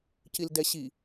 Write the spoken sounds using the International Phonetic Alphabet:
cildɛɕi

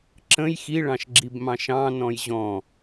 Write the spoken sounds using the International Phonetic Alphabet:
ǁə̃j xiɭɑ̃ʃɡ͡ǁibmɑ̃ ʃɑ̃nɔ̃j ʑɔ̃

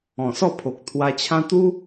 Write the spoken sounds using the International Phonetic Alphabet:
ɔ̃˨˩sɔ˥˧pʰo˨k̚ t̪ʰwa˧t͡ɕʰã˦ t̪u˦

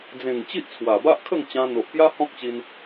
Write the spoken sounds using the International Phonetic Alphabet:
d͡zẽ˨˩ŋ t͡ɕi˦ʔt͡sʰwa˨˩ba˦ʔkʰə˥˧ŋ t͡ɕã˧n̪o˨ʔpja˦ hɔ̃˦k̚t͡ɕi˧n

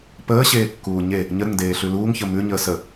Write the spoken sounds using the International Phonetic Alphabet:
pəːɕeːkːuː ɲe | ɲəɾəŋdeːɬʉ luːŋçə mʉɲəː sə

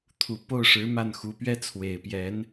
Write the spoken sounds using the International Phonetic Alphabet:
t̪ʰu˨˩po˥˩ʊ̯ʂɻ̩˧˥ ma˥˩nxu˧˥pɥɛ˥ t͡sʰwe˨˩ɪ̯pjɛ˧˥n

